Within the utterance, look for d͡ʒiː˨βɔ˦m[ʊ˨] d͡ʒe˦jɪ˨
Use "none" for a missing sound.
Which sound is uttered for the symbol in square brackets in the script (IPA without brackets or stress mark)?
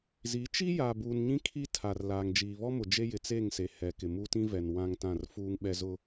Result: ʊ˨